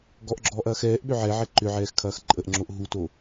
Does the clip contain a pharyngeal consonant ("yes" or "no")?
yes